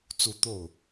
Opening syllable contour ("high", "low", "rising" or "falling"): falling